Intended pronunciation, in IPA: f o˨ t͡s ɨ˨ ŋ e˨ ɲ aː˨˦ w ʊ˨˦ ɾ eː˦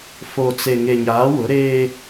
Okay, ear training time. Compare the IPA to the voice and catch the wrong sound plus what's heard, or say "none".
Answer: ɨ˨ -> e˨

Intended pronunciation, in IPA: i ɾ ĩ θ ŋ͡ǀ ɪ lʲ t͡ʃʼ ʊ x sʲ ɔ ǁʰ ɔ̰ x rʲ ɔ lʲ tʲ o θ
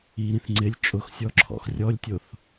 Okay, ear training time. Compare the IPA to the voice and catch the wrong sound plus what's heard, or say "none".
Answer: none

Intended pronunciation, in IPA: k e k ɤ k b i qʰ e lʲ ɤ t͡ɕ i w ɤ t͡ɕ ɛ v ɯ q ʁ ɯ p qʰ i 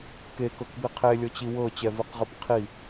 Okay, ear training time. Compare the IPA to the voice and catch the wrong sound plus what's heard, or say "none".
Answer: none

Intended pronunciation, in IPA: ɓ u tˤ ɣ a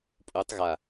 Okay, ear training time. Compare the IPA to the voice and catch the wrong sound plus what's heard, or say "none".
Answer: ɓ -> pʼ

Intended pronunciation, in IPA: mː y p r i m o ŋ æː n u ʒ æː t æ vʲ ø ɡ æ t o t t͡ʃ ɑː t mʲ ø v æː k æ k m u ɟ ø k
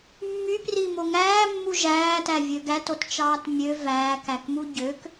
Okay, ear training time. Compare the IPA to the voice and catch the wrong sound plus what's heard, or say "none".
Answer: n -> mː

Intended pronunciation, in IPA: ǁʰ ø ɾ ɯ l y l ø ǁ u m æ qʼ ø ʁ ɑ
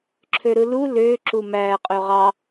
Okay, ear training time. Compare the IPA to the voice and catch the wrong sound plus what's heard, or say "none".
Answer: y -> u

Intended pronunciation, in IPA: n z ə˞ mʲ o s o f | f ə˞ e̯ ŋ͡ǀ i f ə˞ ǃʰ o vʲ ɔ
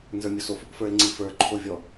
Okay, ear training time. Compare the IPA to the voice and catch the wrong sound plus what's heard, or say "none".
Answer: none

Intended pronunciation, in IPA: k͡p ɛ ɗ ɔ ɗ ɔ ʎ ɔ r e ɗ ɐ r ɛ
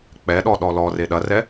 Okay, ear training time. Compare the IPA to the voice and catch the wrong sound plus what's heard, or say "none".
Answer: ʎ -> l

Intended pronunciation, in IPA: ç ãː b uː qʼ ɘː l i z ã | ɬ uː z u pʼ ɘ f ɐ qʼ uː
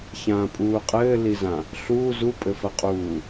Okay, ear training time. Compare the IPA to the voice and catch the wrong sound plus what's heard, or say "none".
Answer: b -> pʼ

